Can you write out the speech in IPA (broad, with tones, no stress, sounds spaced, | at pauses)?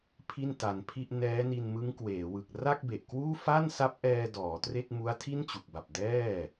pʰ i˥˩ n t a˧ n pʰ i˥˩ ʔ n ɛː˦˥ n i˧ n m ɯ˦˥ ŋ k w eː˩˦ w ɯ˨˩ k̚ r a˥˩ k̚ b e˨˩ ʔ k w uː˥˩ f a˥˩ n s a˦˥ p̚ ʔ ɛː˧ d ɔː˩˦ t r e˥˩ k̚ m u˦˥ a̯ tʰ i˥˩ n t͡ɕ u˨˩ k̚ b a˨˩ p̚ d ɛː˥˩